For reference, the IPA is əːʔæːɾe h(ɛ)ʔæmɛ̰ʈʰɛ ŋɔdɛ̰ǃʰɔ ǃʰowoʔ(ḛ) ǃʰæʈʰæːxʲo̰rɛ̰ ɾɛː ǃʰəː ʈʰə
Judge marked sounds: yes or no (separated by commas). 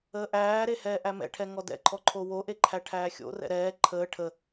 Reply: no, no